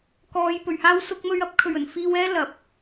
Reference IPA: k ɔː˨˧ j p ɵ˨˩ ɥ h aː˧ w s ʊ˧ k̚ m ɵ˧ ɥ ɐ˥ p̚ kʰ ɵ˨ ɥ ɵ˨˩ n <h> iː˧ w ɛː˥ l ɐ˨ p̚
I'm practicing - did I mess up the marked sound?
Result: yes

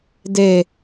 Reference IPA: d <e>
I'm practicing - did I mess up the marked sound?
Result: no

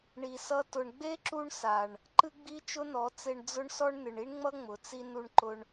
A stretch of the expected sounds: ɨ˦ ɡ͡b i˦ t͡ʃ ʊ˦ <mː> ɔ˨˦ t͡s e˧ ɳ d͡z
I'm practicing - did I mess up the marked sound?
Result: yes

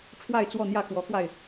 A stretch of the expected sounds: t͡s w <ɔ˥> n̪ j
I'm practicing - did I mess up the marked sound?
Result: yes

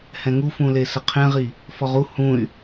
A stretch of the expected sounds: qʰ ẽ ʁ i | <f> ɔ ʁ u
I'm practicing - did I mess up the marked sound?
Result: no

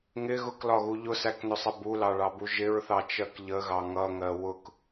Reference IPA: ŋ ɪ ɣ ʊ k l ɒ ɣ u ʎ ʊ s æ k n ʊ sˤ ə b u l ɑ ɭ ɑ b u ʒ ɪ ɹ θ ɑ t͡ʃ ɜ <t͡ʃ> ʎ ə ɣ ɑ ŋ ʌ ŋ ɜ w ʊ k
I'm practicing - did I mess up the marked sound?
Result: yes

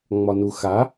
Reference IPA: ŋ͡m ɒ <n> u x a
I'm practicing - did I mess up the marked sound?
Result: no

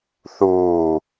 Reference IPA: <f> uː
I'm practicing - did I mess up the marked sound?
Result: yes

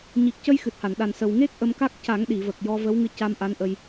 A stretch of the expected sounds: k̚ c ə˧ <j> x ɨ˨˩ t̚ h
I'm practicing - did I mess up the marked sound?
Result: no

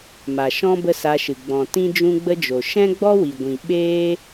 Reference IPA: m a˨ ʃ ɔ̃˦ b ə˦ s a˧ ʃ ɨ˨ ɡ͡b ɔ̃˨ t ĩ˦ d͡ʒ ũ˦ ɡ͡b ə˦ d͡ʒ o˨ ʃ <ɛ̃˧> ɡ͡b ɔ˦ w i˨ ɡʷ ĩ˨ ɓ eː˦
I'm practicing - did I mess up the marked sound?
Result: yes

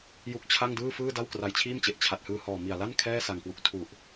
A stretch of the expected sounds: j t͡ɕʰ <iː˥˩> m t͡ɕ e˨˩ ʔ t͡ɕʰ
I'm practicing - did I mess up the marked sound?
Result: no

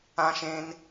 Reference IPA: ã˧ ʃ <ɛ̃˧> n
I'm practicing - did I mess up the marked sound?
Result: yes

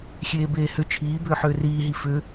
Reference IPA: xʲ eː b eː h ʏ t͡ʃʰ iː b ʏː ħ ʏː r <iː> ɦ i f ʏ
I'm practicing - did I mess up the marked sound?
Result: no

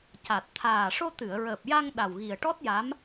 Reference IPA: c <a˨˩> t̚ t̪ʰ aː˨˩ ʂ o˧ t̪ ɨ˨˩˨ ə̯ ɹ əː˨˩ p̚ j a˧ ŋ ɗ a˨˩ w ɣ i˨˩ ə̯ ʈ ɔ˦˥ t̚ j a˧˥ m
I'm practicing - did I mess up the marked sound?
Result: no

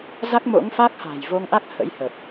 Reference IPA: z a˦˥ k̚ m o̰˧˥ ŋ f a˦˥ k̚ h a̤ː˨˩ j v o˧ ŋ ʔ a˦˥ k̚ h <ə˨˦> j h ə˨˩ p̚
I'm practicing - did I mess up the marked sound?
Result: yes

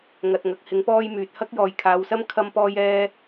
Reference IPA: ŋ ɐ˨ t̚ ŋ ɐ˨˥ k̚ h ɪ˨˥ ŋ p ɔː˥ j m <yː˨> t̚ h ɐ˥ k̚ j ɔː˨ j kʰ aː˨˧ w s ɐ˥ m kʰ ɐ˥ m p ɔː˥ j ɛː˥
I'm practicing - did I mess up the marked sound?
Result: no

